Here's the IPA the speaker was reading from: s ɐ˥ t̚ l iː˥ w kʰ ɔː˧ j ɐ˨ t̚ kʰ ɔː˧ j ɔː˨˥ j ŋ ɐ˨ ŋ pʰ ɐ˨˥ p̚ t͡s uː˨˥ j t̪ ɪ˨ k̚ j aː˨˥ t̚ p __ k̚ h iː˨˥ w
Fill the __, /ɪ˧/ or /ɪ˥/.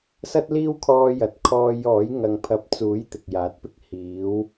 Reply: ɪ˥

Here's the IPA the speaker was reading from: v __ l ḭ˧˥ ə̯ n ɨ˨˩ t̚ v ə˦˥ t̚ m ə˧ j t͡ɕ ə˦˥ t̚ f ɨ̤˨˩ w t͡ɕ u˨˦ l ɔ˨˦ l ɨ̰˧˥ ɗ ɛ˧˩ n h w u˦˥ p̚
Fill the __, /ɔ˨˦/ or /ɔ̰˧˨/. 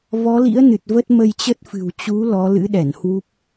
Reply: ɔ˨˦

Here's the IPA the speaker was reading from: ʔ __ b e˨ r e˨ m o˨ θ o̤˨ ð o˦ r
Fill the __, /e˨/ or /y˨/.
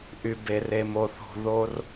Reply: y˨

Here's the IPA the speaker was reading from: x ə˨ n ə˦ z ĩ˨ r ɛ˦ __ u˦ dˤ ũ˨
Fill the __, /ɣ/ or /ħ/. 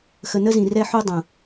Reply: ħ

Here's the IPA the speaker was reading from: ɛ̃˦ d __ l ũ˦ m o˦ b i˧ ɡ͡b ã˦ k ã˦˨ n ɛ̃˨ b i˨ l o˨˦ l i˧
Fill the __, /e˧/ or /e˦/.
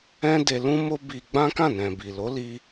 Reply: e˧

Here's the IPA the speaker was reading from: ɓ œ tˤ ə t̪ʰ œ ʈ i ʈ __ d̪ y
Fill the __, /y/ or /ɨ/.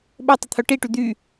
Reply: y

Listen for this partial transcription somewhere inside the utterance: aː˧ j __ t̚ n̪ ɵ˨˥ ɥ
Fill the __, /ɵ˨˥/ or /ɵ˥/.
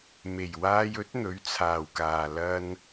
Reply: ɵ˨˥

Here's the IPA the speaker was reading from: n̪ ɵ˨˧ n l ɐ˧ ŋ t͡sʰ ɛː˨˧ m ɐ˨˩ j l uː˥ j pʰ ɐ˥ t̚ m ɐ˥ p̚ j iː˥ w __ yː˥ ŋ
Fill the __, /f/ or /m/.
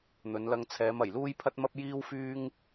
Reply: f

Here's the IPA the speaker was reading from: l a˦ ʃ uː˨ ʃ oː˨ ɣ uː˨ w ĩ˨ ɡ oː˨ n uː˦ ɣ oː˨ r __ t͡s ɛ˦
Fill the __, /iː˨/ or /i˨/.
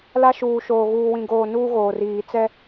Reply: iː˨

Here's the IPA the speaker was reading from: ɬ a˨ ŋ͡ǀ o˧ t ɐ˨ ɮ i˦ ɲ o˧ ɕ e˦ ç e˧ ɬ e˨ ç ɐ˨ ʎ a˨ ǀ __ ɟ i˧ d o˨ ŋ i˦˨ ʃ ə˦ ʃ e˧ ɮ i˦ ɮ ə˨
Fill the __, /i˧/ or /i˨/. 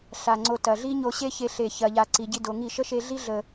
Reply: i˨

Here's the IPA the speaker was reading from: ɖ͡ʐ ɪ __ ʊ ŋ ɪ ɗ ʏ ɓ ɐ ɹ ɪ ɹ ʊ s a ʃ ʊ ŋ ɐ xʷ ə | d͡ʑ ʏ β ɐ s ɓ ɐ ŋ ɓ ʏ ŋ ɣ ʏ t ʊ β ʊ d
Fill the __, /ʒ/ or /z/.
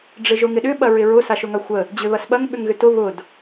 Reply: ʒ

